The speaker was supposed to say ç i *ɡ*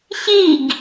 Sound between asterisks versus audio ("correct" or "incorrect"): correct